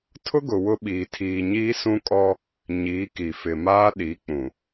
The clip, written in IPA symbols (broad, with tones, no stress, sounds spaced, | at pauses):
tʰ ʊ˦ ɡ ʊ˨ w ʊ˦ ɓ iː˨ tʰ iː˨ ɲ iː˦ s ũ˦ kʼ ɔ˦ | ɲ iː˨˦ k i˨ f ɪ˨ m aː˦ ɗ i˨˦ k͡p ũ˨